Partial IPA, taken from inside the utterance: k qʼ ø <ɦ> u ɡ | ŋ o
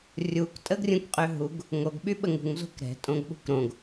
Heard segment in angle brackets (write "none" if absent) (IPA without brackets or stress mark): ɦ